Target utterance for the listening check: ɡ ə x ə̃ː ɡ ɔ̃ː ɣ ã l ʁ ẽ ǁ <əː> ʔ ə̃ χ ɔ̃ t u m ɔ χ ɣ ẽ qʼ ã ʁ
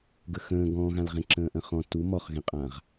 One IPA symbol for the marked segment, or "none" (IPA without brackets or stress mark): ə̃ː